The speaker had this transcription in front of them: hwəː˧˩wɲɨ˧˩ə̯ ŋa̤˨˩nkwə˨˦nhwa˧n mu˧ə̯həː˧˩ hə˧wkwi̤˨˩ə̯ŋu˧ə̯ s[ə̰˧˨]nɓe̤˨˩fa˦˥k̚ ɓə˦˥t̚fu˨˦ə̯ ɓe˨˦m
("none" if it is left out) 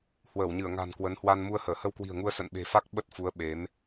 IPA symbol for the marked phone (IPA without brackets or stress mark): ə̰˧˨